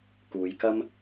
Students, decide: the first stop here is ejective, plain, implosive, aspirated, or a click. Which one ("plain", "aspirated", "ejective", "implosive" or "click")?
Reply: plain